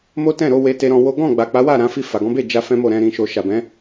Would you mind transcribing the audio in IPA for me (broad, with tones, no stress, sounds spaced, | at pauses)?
m o˦ t ɛ̃˦˨ ɾ o˧ w e˧ t e˧ ɾ ɔ̃˧ w o˦ ɡ ɔ̃˦˨ ɡ͡b a˨ k͡p a˨˦ w a˦˨ ɾ ã˨˦ f i˦˨ f a˨ ɡ ɔ̃˨˦ b e˦˨ d͡ʒ a˧ f ɛ̃˦ m o˦˨ ɾ ɛ̃˧ ɾ ĩ˧ ʃ o˧ ʃ a˨ b ɛ̃˨˦